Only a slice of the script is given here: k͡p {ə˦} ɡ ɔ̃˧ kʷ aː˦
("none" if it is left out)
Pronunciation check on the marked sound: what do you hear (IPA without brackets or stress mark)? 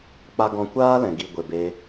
a˦